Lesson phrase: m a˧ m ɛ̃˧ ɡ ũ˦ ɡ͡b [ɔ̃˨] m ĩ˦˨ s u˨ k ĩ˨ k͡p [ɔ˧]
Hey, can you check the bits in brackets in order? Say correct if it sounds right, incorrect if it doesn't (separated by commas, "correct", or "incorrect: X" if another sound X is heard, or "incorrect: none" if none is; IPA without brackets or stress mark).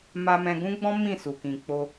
incorrect: ɔ̃˦, incorrect: o˧